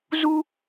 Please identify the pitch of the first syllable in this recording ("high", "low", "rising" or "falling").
high